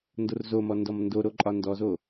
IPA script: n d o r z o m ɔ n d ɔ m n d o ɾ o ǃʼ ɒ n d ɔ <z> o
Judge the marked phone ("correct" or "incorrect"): correct